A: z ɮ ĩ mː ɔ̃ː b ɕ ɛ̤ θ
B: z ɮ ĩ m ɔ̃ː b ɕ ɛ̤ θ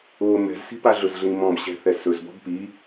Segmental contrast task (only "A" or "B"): B